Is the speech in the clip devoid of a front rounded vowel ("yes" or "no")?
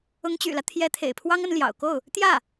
no